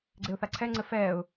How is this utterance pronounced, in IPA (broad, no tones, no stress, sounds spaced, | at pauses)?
ɡ͡ǀ e ʊ̯ θ a ǀʰ ɛ ŋ͡ǀ ɘ f ɛː ʊ̯